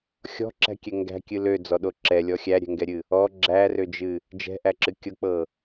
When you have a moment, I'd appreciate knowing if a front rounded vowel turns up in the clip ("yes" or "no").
yes